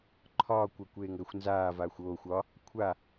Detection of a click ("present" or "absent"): present